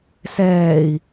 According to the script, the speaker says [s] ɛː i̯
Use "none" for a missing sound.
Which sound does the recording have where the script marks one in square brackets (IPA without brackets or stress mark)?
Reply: s